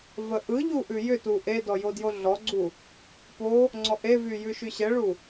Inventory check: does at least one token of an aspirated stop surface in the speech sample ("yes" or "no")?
no